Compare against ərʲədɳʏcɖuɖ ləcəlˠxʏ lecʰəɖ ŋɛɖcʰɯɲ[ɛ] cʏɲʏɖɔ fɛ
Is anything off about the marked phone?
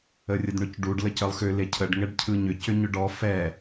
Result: yes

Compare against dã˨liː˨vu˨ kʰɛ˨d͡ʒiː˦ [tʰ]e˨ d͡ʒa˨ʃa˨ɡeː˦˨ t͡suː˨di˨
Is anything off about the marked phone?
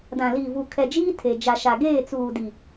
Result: no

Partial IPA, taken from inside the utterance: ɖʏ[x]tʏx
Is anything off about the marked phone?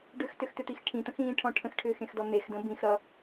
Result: no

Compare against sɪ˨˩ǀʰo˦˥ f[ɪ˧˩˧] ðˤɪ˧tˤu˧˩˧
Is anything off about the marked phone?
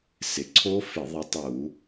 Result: no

